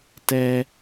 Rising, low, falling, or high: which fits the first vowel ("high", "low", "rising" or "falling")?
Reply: high